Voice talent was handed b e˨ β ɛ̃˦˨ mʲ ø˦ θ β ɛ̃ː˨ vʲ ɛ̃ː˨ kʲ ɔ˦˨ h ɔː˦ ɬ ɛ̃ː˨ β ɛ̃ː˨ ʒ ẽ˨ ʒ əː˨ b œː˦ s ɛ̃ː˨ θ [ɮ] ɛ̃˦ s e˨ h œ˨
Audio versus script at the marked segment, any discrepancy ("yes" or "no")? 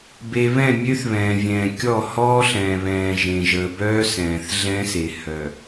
no